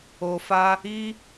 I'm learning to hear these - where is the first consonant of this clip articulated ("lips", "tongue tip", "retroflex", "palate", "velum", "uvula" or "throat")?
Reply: lips